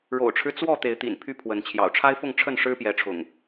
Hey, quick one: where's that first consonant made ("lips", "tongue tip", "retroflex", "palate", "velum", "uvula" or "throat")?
retroflex